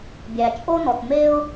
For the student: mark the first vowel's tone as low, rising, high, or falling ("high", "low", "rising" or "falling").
low